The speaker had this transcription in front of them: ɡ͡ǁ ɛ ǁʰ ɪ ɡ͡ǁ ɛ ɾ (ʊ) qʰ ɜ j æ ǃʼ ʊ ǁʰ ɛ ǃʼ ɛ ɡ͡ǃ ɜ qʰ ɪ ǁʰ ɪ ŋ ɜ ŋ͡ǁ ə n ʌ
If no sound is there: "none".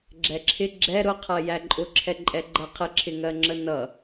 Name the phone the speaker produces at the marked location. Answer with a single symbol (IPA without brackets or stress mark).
ʊ